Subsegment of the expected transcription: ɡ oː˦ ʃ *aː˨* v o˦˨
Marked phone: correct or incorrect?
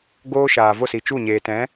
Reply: correct